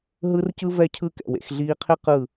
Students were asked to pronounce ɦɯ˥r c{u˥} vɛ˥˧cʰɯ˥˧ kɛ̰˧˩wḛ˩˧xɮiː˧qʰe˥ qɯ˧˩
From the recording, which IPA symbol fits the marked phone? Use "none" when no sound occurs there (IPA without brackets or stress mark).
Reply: ɯ˥